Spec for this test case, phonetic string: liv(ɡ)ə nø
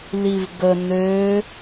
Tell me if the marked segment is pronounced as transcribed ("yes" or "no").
yes